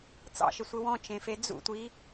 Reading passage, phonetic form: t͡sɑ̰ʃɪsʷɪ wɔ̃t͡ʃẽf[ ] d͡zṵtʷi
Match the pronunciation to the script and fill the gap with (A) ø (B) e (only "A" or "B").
B